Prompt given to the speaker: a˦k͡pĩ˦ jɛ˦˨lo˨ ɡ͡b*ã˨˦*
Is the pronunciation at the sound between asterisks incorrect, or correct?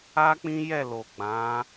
correct